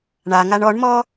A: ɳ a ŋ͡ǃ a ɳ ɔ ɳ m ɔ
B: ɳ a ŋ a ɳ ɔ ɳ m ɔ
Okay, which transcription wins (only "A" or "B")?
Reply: B